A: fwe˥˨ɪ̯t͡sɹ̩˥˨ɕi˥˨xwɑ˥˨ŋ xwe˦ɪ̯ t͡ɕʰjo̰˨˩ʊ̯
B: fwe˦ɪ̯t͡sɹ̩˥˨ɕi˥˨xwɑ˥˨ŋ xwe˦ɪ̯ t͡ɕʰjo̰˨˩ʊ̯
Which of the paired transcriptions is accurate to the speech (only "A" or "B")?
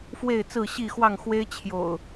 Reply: A